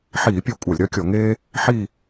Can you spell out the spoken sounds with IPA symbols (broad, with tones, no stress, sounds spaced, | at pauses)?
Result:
ħ iː˧˩˧ pʲ œ˧˩ kʷʼ a˧˩˧ lʲ ɾ œ˥ kʲ ɔ˧˩˧ ŋ eː˥ | ħ i˥˧